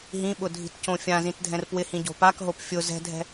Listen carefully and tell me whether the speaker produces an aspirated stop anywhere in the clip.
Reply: no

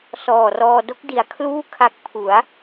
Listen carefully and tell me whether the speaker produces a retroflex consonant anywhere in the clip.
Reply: no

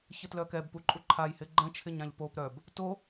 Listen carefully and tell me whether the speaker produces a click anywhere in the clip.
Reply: yes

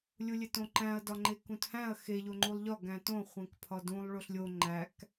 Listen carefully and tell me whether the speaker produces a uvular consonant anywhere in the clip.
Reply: yes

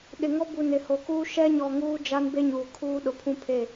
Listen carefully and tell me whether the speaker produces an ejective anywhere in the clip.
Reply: no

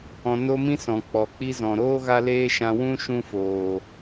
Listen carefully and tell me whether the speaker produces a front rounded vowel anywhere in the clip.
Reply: no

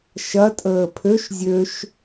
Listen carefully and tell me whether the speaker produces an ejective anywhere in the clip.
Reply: yes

